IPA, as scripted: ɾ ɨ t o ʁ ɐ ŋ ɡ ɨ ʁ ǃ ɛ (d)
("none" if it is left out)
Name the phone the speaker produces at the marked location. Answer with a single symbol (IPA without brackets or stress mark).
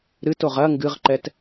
t